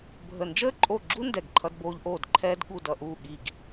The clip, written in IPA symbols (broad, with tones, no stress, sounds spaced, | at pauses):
bʱ ə˦˨ n d͡ʒ əː˥ ǃʼ o˦˨ ɡ͡ǁ u˥ n d ɛ˦˨ ɡ ǃʰ ʌ˥ d b oː˥ ʎ ʔ oː˦˨ d ǃʰ ɛː˥ d ɠ u˦˨ d ʌ˦˨ ʔ uː˦˨ ɠ i˦˨ ɡ